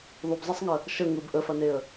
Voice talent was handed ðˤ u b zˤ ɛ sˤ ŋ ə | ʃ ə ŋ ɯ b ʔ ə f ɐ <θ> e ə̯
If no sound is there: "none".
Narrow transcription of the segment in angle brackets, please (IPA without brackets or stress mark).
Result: n